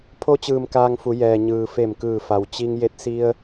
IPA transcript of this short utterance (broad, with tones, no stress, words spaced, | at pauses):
pʰo˧t͡ɕɯː˩m kaː˧ŋfu˩˧jɛː˩ ɲɯː˩fe˧˩m kɯː˧˩fa˩w t͡ɕi˧ŋ je˧˥t̚ si˧ə̯